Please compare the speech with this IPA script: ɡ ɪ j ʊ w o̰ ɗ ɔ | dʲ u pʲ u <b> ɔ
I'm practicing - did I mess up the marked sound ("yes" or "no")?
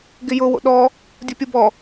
no